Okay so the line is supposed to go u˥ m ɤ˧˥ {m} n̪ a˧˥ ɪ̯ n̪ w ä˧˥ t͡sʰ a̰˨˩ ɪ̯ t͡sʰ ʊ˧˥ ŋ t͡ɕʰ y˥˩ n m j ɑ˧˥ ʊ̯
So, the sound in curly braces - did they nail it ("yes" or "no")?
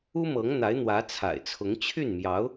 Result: no